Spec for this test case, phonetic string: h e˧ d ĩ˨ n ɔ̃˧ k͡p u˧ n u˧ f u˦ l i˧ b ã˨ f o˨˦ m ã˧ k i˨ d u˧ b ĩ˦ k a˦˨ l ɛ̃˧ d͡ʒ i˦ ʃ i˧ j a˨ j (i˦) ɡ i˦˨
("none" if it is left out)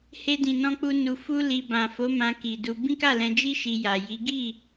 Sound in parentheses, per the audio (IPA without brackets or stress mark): i˨˦